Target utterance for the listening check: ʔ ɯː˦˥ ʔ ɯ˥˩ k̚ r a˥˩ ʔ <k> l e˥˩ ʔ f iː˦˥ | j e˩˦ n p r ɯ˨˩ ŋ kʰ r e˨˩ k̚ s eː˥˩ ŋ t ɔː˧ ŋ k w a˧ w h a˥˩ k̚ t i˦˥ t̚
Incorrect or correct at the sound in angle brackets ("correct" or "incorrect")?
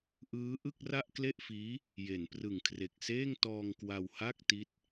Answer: correct